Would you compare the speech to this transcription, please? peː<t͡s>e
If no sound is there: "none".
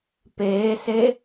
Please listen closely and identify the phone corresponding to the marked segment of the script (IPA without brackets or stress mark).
s